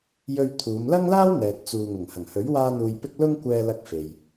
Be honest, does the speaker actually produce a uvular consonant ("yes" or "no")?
no